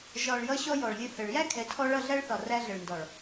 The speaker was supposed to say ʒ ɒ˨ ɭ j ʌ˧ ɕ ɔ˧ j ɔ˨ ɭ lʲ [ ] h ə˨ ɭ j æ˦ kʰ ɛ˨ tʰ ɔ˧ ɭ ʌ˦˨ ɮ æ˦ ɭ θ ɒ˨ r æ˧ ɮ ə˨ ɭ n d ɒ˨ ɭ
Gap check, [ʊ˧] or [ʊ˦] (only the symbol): ʊ˧